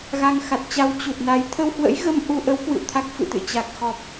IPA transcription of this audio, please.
ɣ a˧ ŋ x a˨˩ t̚ t͡ɕ a˧ w t͡ɕ u˨˩ t̚ n a˨˦ j t̪ʰ ə˧ w h w ə̰˧˥ j ɣ ə˧ m ʔ u˧ ʔ ə˨˦ w k w ɨ̰˧˨ w t̪ʰ a˦˥ k̚ f ɨ̰˧˨ t̪ ɨ̰˧˨ t͡ɕ a˨˩ k̚ x ɔ˨˩ p̚

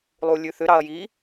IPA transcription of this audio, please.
lˠ u lʲ ʉ θ ʏ ɾ ɑ ɐ̯ j i

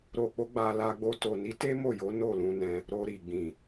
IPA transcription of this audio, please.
ɾ o˨ k͡p o˧ ɡ͡b a˨ l a˧ ɡ͡b o˧ t o˨ n i˨˦ t e˦ m o˦˨ j o˨˦ n o˦˨ l ũ˧ n ɛ̃˧ | ɾ o˧ ɾ i˨ ɡ͡b ĩ˨

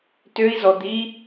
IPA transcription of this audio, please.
t ø i̯ z ɔ d̪ i

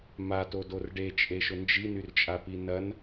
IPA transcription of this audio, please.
m a t o d o r ɖ e t͡ʃʼ e ʃ ʊ n d͡ʒ i n y r t͡ʃʼ a p i n ɐ n

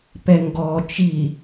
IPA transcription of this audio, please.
p ɛ ŋ ɡ ɔ t͡ʃ i

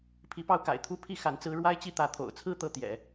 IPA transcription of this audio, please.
pʰ i˧˥ p ɑ˥˩ ʊ̯ k a̰˨˩ ɪ̯ t̪ʰ u˥ pʰ i˥˩ x a˧˥ n t͡s ɹ̩˥ ɻ w a˥ ɪ̯ t͡ɕ i˥˩ t̪ ä˧˥ t̪ʰ o̰˨˩ ʊ̯ t͡sʰ ɹ̩˥˧ t̪ ɤ˥˩ t̪ j ɛ̰˨˩˦

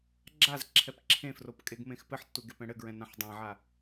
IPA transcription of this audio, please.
ɡ͡ǁ a z ǁʰ ɛ p ǁʰ ẽ f r o p kʼ e ɡ m ẽ x p ɘ ħ tː u ɡ e p ɛ̃ ɽ ɘ ɡ ɹ ɛ̃ n ã ħ dˤ ã ʕ a

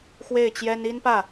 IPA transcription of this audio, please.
x w e˥˩ ɪ̯ t͡ɕ j ɛ˥ n i˥ n p ä˥˩

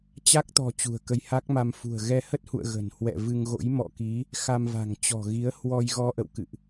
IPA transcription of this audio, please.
t͡ɕ a˦˥ k̚ t̪ ɔ̤˨˩ t͡ɕ ṳ˨˩ ə̯ k ə˧ j h a˦˥ k̚ m a˧ m f ṳ˨˩ ə̯ ɣ ɛ˧ h ə˦˥ t̚ h ṵ˧˨ ə̯ ɣ ə̤˨˩ n h w ɛ̰˧˨ v ɨ˧ ŋ ɣ o̰˧˥ j m ɔ̰˧˨ k i˨˦ | x a˧ m v a̤˨˩ ŋ t͡ɕ ɔ̤˨˩ ɣ i˨˦ ə̯ h w ɔ˧ j ɣ ɔ˧ ʔ ə̰˧˨ w k ɨ̰˧˨ ʔ

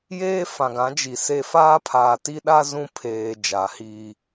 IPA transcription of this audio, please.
j eː˦ f ã˨ ɡ ã˨˦ d͡ʒ i˨ s e˦ f aː˦ pʰ aː˨ t i˦ ɗ a˦ z ũ˦ pʰ eː˨ d͡ʒ a˨˦ h iː˦

